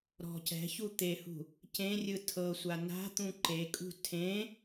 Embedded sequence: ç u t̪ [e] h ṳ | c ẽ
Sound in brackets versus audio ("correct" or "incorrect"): correct